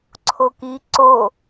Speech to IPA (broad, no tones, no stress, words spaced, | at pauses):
ǀʰoki ǀo